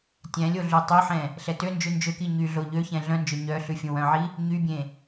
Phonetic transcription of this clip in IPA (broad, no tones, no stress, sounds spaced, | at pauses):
tʲ æ̃ lʲ o ɮ ʉ tˤ ɵ ħ ɛ̃ | ɬ ɛ t ø n d͡ʒ ʉ n d͡ʒ ø k i ɲ y ɮ o ʎ ø ç ɛ̃ ɮ œ̃ n d͡ʒ ø ɲ œ ɬ ʉ fʲ õ w œ̃ ʕ i | ɲ y bʲ ẽ